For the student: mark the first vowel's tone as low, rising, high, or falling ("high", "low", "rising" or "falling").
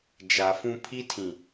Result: low